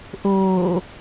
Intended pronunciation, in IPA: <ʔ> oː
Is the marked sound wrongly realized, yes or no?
no